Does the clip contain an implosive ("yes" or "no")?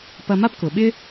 yes